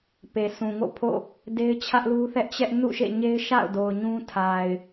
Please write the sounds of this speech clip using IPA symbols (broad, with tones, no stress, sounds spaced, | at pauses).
p e˨ s ũ˨ ŋ o̰˦˨ pʰ o̰˦˨ | d e˦ ɪ̯ t͡ɕʰ ä˦ ʔ l u˦ θ ɛ˦ ʔ t͡ɕ ɛ˦ ʔ n ṵ˦˨ ʃ ḛ˦˨ ɲ e˦ ɪ̯ ʃ a̰˦˨ ʊ̯ d o˨ ʊ̯ ɲ ũ˦ tʰ a˨ ɪ̯